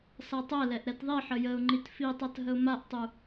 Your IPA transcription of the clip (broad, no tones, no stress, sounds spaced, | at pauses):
s a tˤ ɛ l ɛ ʔ ɾ ɛ t ðˤ i ħ ə j ə ʊ̯ ŋ͡ǃ i t f i tˤ a t ɦ ə ʊ̯ m a ʔ tˤ u